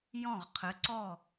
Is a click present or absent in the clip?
present